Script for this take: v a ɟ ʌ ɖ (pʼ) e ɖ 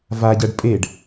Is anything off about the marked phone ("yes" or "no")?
no